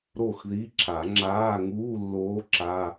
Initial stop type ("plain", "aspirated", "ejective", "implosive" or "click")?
click